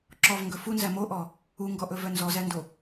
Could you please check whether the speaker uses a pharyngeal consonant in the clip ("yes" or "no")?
no